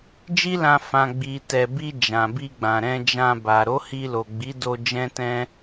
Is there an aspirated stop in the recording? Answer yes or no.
no